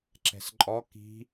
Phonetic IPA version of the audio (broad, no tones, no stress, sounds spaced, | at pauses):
ǁ ɛ̤ s ǃʼ ɔ k i̤